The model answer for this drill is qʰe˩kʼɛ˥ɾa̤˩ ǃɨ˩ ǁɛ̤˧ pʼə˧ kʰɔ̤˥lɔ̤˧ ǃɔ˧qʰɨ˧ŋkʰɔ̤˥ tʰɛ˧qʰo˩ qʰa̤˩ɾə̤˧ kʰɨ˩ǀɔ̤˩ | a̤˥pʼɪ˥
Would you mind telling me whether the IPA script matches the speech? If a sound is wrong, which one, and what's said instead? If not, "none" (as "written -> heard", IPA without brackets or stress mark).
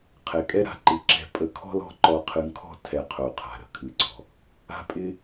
none